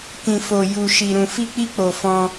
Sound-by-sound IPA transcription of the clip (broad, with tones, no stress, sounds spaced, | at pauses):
k ĩ˨ f o˨ j u˨ ʃ i˨ ɾ ũ˨ f i˧ k͡p i˧ k͡p o˨ f ɔ̃˧